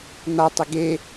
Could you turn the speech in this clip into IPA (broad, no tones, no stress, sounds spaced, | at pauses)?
n̪ a tˤ ø ɡ e